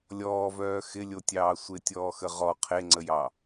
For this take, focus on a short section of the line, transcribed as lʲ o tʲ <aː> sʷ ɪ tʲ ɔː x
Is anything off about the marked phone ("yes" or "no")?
yes